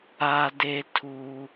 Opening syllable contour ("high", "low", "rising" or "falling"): high